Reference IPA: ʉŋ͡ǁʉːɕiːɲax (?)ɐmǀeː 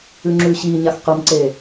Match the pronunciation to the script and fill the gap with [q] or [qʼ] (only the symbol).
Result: q